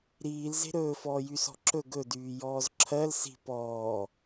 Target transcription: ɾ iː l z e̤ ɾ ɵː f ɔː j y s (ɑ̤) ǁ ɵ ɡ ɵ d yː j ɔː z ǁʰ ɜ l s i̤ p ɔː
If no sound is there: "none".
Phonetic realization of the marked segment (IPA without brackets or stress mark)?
ɔ̤